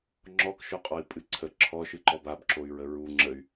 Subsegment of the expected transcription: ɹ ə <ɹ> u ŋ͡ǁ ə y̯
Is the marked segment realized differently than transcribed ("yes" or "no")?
no